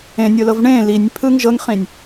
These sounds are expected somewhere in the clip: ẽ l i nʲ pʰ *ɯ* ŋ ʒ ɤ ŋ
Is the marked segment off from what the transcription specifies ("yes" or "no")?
no